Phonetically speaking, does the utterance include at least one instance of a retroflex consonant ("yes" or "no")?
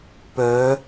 no